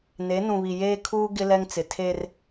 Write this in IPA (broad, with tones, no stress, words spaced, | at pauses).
ne˨˦nũ˨βi˨ jeː˦kʰuː˦ ɡɪ˦ lɛ˦ŋt͡sɪ˨ tʰe˦r